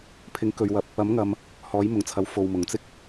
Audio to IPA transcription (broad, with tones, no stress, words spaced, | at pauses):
pʰɪ˨˥ŋkɵ˨ɥwɐ˨p̚ | ɐ˨˥mŋɐ˨m | hɔː˨˥jmʊ˨˩ŋt͡sʰɐ˨w fo˨wmʊ˨˩ŋ t͡sɪ˥k̚